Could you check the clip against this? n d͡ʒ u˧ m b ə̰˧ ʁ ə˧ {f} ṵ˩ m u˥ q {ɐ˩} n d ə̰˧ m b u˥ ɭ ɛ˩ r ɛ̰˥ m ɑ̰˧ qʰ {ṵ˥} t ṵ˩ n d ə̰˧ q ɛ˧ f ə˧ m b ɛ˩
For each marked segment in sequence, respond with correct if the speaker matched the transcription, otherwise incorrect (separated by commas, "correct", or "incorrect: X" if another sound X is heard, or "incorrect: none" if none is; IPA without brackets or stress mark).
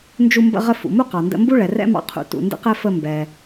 correct, incorrect: ɑ˩, incorrect: ṵ˩